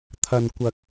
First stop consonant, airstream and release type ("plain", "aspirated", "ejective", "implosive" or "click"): aspirated